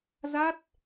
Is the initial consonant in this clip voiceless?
no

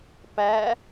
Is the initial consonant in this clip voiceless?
yes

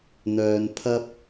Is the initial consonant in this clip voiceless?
no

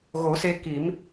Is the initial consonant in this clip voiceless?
no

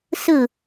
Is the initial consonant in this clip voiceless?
yes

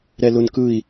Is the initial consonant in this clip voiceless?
no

